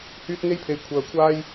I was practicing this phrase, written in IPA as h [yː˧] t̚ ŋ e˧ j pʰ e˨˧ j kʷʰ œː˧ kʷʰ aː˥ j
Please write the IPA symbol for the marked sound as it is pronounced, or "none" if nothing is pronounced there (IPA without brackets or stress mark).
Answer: yː˧